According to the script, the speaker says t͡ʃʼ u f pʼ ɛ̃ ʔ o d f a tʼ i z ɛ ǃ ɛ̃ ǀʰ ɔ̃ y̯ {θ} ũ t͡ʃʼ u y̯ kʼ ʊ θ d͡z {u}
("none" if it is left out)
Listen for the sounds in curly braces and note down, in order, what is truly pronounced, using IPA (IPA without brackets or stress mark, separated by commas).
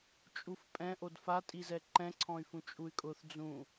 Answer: f, ũ